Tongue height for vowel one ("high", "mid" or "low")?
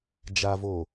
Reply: low